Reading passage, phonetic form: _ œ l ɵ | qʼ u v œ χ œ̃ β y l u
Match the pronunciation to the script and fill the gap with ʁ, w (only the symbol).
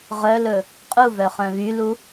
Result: ʁ